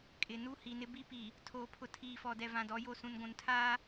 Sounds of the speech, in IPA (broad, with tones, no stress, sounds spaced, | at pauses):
kʼ ɪ˨ n u˦ h i˨ n ɪ˦ b i˦ p i˨ | tʰ oː˨ pʰ ʊ˨ tʰ iː˨ f ɔ˨ d ɛ˨ v ã˨ d ɔ˨˦ j o˦˨ s ũ˨ n ɡʷ ũ˨ n tʰ aː˦